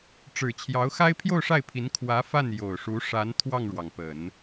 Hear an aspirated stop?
yes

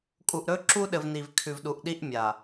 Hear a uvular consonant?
no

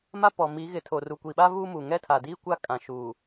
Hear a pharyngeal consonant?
no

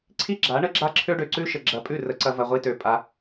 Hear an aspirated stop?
yes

